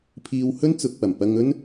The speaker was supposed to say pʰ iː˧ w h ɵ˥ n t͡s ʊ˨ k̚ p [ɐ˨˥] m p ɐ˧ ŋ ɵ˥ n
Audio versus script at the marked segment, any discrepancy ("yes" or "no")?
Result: yes